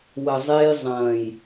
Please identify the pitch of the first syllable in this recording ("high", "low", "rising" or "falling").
low